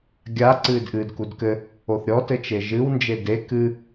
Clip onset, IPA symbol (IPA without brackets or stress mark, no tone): ɡʲ